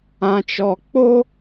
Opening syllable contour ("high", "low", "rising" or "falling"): low